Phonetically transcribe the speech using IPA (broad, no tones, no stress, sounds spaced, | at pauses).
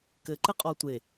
k ɘ ǃ ɘ qʼ ɔ tʷ e